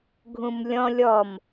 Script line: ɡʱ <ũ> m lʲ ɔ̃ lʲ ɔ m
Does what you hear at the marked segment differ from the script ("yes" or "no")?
no